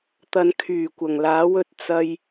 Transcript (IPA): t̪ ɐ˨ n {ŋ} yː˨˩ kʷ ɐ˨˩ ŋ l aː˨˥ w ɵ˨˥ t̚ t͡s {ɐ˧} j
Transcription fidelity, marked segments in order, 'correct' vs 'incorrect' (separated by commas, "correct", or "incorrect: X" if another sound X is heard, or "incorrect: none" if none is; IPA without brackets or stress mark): incorrect: kʰ, correct